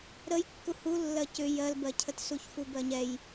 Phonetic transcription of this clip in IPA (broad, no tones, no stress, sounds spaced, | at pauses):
ɾ ə j kː u h u lː ɜ c ʏ j ɜ l b ɜ cʰ ə t s u ç f u b ɜ ɲ ɛ j